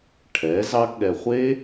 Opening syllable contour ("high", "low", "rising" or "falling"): rising